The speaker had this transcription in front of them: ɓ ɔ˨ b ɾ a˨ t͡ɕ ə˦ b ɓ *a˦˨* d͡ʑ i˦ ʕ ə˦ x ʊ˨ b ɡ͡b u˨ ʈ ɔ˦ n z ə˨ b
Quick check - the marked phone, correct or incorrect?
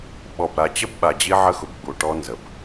incorrect